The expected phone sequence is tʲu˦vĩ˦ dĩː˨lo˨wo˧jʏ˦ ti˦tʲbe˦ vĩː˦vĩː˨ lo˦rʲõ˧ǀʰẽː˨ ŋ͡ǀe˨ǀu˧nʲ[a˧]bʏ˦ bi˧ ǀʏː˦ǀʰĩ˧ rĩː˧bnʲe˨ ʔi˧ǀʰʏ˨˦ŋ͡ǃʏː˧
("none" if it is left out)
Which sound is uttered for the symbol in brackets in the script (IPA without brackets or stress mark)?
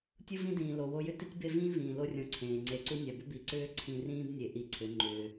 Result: a˨